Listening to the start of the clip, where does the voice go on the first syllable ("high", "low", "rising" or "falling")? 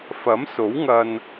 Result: rising